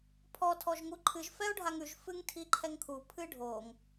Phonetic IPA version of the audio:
pʰ ɔ tʰ ɔ ʒ ŋ u ǃʰ ɨ ʒ f ɛ o̯ ɖʱ a ŋ ʉ ʒ f ɨ ŋ tʰ i ǃʰ ɛ ŋ kʰ u pʰ ɨ ɖʱ o ŋ

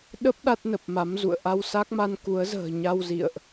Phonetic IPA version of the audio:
ɗ ə˦˥ p̚ ɗ a˦˥ t̚ n ə˨˩ p̚ m a˨˦ m z ṵ˧˨ ə̯ ʔ a˧ w s a˦˥ k̚ m a˧ n k u˨˦ ə̯ z ə̤ː˨˩ ɲ a˧ w z ḭ˧˨ ə̯ ʔ

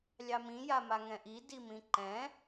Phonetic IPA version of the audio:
lʲ ɑ m ĩ j a m a ŋ ɛ̃ ʔ i d i m ĩ ǃ ɛ̃

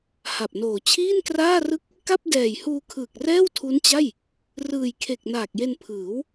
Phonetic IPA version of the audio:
h a˨˩ p̚ n oː˨˩ t͡ɕʰ iː˥˩ n k r aː˥˩ r ɯ˥˩ k̚ | k a˥˩ p̚ d ɛː˨˩ j h uː˧ kʰ ɯː˨˩ k̚ r ɛː˥˩ w tʰ u˦˥ n t͡ɕ a˥˩ j | r ɯː˨˩ j kʰ e˨˩ k̚ n aː˨˩ k̚ j e˧ n pʰ ɯː˩˦ w

